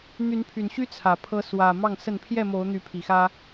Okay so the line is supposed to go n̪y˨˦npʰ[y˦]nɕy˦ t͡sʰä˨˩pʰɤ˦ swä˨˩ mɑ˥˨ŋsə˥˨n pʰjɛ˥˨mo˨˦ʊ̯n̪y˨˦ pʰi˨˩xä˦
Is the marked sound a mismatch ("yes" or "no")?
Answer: yes